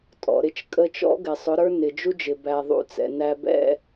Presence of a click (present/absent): absent